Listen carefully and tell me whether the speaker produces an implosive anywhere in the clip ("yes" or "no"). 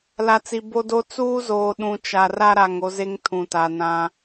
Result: yes